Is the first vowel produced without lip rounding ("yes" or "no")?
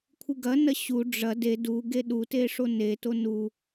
yes